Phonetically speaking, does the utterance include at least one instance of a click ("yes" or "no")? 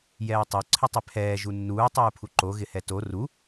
yes